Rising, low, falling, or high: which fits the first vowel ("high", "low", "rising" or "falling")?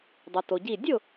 low